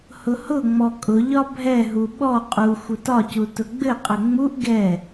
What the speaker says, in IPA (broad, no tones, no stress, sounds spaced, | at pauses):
h ʊ h ʊ ŋ͡m ɔ kʼ ʊ ʎ ɒ bʱ ɛ ɦ u ɓ ɔ qʼ u xʷ ʊ t ɒ c u t ʊ ɡ͡b ɘ qʼ ɘ ŋ͡m u ʔ ɡ ɛ